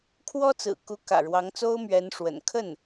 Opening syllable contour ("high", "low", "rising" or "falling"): high